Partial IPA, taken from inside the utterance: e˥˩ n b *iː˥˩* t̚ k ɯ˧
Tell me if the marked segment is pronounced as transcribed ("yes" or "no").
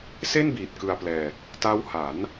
no